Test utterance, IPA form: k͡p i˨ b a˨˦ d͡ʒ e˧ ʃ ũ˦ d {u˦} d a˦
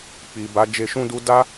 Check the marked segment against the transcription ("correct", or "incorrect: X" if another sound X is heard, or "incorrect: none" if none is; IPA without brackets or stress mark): correct